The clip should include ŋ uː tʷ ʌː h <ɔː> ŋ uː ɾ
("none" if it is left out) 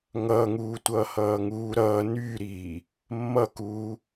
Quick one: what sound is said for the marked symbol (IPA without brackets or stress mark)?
ʌː